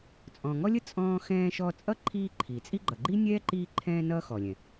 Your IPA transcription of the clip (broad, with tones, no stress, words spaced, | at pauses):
t͡sʼɔ̃˨ ŋɔ˥lʲə˥ t͡sʼɔ̃ː˦xɛ̃ː˦ʃɔ˦ t͡sʼʌ˥ǃʰiː˦ ǃʰi˩t͡sʼi˥ ɡ͡ǃʌ˩ɡ͡ǃi˥nʲɛː˥ ǃiː˦ǃʰɛ̃ː˦nʌː˦ xɔ˩lʲɛ̃˩